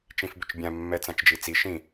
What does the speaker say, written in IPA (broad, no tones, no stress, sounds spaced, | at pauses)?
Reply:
t͡ʃ ĩ f b ʏ t͡ʃ bʲ ã mː ɛ t͡s ã t͡ʃ d͡ʒ i t͡s i ʃ ĩ